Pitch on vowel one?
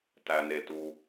low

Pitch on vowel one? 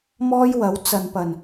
high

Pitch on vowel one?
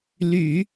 low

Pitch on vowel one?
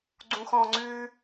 low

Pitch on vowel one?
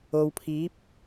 low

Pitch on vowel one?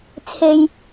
low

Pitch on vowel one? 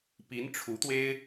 rising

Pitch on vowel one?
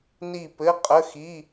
falling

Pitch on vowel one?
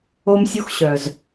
high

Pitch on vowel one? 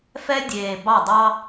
high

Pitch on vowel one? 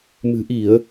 low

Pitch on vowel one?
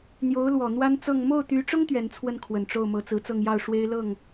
rising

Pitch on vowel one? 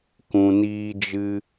low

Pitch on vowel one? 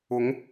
rising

